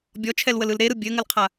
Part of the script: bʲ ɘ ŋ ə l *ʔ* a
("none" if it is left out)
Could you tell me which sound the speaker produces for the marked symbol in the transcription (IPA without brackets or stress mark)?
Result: qʰ